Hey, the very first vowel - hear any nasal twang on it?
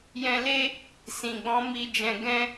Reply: yes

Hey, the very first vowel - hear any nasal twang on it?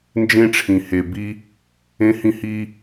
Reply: yes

